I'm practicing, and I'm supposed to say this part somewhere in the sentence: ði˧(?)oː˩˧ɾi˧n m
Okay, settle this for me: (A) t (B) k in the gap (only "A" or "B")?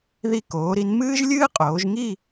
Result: B